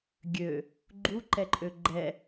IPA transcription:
ɡʲø | ɡ͡ǃuǃɛǃʼø ɡ͡ǃɛ

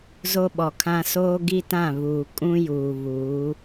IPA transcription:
zo˦ɓɔ˨kʰã˦ soː˦ɡi˦tã˦˨ βuː˨ kʼũ˦juː˨βuː˨˦

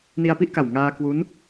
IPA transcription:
ni˧a̯pi˥˩ʔka˨˩w ŋaː˧kwu˦˥n

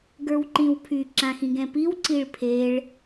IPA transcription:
ɡə˞wǃĩwpʰy ǁãxĩɡɛ̃piw ǀiɭpʰeɭ

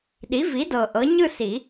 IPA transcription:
ɗi˩˥vi˩˥dɤ˨˩ ʔɤ˩˥ɲɯ˥˨si˨˩˦

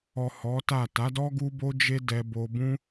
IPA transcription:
ɔ˨ hɔ˨˦ta˦˨ ta˨˦dɔ˦ ɡu˦bo˦d͡ʒe˦ dɛ˧bo˧bũ˦

